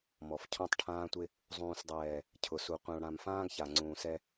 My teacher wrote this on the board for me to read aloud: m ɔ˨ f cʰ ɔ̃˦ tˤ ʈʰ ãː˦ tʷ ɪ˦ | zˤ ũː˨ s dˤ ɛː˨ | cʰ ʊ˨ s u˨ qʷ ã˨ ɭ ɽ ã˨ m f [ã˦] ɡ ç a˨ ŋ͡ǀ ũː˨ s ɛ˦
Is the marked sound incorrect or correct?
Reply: incorrect